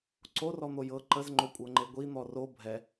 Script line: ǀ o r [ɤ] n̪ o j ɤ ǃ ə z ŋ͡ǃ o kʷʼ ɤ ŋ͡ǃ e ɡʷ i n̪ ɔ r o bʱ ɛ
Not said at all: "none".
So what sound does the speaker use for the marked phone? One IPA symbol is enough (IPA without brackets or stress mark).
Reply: ɔ